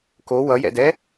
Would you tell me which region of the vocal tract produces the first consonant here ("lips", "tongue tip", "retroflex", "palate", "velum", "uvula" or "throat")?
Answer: velum